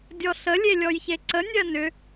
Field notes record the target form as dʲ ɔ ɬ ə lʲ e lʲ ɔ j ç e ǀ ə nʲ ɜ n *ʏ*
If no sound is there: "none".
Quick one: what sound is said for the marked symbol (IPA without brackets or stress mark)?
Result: ʏ